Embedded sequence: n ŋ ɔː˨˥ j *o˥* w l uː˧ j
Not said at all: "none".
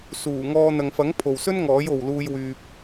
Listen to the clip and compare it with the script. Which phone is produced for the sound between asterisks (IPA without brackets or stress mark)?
o˨